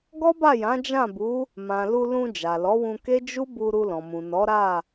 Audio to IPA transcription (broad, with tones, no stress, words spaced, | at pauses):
ɡɔ˦ba˦˨jã˨˦ d͡ʒã˦˨bu˨˦ | mã˨lu˧ lũ˧ d͡ʒa˨lɔ˨˦wũ˧ke˦ d͡ʒu˦bu˧ ɾu˧lɔ̃˨mũ˨ nɔ˨˦ɾa˦˨